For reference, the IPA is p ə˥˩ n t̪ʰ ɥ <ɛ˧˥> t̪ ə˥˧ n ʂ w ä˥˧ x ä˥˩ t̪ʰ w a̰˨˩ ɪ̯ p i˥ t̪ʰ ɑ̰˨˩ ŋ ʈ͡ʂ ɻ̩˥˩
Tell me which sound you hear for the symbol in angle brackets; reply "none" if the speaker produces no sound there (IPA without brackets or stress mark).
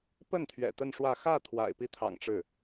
ɛ̰˨˩